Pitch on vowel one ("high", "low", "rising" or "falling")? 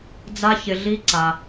high